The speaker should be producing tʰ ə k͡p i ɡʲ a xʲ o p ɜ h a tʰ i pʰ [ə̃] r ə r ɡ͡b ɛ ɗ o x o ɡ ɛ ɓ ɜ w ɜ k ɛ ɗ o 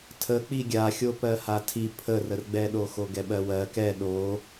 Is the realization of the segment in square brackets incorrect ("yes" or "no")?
yes